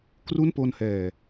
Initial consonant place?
velar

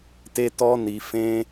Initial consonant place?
alveolar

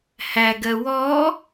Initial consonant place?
glottal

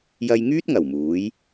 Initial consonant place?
palatal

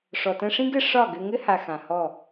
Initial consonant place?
retroflex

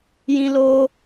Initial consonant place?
palatal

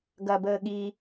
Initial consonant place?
velar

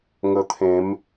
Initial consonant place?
velar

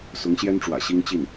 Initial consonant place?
alveolar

